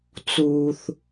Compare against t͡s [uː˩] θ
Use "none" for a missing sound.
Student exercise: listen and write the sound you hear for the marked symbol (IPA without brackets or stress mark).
uː˩